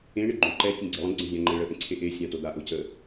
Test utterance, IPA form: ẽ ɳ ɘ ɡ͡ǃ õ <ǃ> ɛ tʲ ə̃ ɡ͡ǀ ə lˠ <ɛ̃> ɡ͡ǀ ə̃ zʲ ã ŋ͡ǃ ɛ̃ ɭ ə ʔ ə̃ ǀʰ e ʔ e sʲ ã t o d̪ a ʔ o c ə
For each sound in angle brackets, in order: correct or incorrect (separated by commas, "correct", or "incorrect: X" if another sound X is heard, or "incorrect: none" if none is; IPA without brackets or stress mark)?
correct, incorrect: ə̃